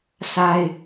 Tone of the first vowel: high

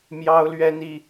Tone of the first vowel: high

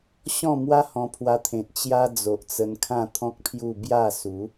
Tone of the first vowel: falling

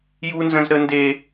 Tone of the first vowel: high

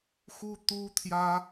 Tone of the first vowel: high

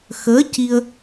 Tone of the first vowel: rising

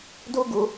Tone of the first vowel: high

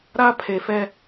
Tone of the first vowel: high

